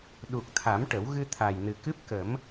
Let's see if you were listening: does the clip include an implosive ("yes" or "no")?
yes